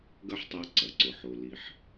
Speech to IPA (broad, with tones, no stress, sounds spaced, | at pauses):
ɡ ɐ˥ ħ tˤ a˦ ǀ ɐ˩ ǀ ʊ˨ ħ o˨ l i˦ ħ